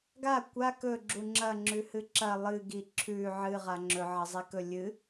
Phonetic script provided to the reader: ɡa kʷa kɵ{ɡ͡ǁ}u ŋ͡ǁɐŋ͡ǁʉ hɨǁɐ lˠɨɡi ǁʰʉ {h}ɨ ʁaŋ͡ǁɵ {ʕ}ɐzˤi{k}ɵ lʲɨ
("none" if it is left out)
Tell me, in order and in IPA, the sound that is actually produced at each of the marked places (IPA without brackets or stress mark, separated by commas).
ɡ͡ǁ, ʕ, ʕ, k